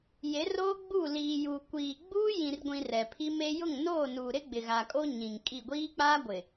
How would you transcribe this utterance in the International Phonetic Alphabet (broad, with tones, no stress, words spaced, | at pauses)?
je˨˦roː˦ ɡ͡bu˦˨liː˨ juː˨kʷiː˨ ɡ͡buː˦jĩ˨rɡʷĩ˨ rɛ˨pʰi˦me˦ jʊ˦˨ŋnoː˦˨nuː˨ɾɪ˦ ɡ͡bɪ˨ɣa˨kʼo˦ ɲĩ˨ŋkʼi˦˨ ɡʷiː˦k͡paː˦ ɡʷɪ˨